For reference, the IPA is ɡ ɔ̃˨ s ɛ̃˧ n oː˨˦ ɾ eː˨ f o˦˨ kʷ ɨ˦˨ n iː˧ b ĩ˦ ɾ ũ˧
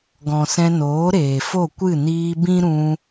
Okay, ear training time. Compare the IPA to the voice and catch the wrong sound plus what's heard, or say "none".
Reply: none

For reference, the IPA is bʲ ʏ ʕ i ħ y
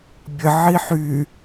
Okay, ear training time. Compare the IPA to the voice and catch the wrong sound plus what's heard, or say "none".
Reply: ʏ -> ə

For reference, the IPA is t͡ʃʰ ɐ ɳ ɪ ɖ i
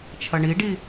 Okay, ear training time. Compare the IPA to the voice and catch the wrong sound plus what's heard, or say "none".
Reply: ɪ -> i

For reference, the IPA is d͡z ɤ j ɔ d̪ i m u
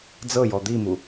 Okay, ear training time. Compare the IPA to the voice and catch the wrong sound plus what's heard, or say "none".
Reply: none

